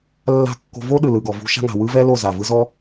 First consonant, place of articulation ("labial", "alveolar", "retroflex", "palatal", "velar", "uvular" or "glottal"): alveolar